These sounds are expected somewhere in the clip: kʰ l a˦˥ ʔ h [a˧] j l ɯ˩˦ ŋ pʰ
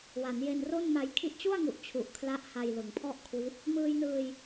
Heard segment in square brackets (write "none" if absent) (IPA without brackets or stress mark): a˧